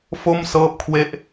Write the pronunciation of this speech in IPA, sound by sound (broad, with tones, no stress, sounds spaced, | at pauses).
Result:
f o˥˩ m s ɤː˥˩ p̚ kʰ w e˥˩ ʔ